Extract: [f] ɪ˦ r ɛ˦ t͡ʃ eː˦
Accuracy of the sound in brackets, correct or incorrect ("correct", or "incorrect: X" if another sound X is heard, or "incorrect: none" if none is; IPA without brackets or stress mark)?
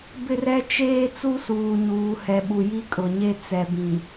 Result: incorrect: b